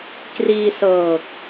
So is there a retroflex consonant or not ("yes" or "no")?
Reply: no